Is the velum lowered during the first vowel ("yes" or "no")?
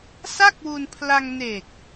no